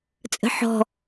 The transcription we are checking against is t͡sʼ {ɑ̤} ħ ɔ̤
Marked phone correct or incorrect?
incorrect